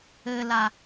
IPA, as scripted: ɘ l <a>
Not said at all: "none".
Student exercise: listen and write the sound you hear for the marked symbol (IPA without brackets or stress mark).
a